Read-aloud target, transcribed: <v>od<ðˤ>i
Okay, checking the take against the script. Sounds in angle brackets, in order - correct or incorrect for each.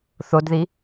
incorrect, incorrect

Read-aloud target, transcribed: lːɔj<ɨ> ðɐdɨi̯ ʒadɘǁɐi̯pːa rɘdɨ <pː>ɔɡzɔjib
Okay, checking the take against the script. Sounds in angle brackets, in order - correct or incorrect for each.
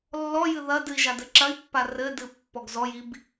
correct, correct

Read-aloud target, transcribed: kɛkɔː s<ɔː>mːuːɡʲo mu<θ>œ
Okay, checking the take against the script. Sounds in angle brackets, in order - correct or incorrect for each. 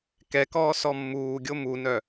incorrect, incorrect

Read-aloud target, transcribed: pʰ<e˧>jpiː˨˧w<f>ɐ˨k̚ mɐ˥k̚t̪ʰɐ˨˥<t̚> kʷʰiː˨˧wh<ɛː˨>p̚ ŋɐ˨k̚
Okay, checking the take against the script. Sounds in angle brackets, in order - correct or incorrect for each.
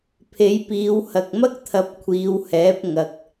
incorrect, incorrect, incorrect, incorrect

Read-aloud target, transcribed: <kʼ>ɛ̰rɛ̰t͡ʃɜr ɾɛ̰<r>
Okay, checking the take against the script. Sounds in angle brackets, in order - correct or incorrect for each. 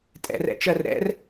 incorrect, correct

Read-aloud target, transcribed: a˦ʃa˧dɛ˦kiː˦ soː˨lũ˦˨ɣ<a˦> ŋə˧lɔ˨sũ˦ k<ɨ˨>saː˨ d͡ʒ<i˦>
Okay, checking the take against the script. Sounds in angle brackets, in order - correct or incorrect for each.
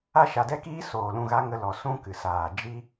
correct, correct, correct

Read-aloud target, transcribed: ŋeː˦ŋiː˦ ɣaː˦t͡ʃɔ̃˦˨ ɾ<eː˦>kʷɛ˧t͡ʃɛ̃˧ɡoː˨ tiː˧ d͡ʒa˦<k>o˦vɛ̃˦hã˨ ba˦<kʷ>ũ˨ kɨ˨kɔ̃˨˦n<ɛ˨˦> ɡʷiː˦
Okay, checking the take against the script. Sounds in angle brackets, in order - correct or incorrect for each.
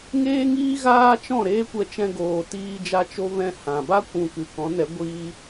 correct, incorrect, correct, correct

